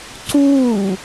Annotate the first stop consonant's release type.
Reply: click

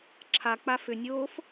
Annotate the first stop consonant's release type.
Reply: click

